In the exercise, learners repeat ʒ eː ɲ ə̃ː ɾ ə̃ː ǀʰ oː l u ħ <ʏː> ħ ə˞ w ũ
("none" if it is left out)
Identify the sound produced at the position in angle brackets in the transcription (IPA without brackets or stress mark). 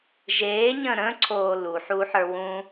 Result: uː